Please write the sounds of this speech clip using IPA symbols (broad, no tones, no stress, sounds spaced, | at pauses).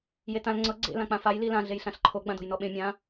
j e t ã l ŋ͡ǀ ɤ ɡ͡ǀ ḛ l ã k͡p ã f a j l i l ã ɮ e j ɬ ã ɬ ǃʰ o ɡ͡b ã d o̤ j n ɔ ɓ ẽ mʲ ã